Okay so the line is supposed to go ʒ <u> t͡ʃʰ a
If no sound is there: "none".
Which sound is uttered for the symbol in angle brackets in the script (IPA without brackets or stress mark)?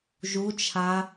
u